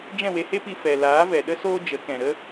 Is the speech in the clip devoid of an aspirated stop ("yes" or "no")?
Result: yes